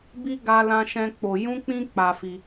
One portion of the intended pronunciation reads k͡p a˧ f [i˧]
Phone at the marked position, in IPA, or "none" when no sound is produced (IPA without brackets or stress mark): i˧